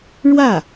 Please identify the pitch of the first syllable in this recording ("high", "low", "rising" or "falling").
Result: falling